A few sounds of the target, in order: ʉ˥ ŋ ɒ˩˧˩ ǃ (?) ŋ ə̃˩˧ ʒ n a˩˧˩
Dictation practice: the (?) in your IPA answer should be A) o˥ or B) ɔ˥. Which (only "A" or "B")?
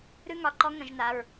B